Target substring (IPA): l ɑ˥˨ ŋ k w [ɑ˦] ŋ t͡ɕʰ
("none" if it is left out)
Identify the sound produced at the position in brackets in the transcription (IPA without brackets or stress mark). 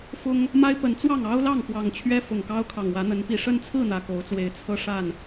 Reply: ɑ˨˩